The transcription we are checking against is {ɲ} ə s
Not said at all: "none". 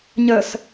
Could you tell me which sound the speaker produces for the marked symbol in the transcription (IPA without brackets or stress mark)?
ɲ